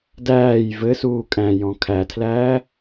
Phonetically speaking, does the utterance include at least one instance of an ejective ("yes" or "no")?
yes